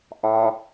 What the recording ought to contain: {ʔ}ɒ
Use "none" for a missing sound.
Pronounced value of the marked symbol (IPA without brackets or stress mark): ʔ